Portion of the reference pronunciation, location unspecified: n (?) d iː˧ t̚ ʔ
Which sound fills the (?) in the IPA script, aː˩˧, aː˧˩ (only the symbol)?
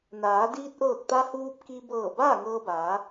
aː˩˧